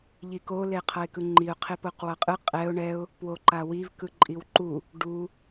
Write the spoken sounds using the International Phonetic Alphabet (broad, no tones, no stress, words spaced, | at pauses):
ʎiko leqʰʌɪ̯kɯŋ͡ǃiʊ̯ qʰepoqwʌqʼɯ qʼɛʊ̯ ɳɛʊ̯ | pwoǃawiv kɯǃʼiwǃu | ɖu